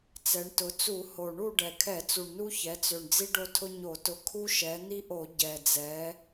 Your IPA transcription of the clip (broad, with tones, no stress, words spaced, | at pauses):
t͡sɛ˩˧ɳtʊ˩˧t͡su˧˩˧ ho˨˩ ɳu˥˨ɖɛ˨˩ kʰɛ˧˩˧t͡su˨˩ɳnu˦ çɛ˩˧t͡sø˨˩ɳ d͡zi˦ɖo˦tʰʊ˦ ɲo˧˩˧tʊ˨˥ kʰu˦ʃɛ˩˧ n̪i˦ʔo˧˩˧ ɟɛ˨˩d͡zɛ˩˧